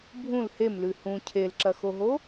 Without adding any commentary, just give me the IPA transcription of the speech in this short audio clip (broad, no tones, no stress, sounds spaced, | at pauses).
bʱ ũ l h e m l ʉ h ũ cʰ e l ǁ ɐ x o ɦ o